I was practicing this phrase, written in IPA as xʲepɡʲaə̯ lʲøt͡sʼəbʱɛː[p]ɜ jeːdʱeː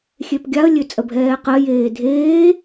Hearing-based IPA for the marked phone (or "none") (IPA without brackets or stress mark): q